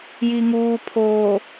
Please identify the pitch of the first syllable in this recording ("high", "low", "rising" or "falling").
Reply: low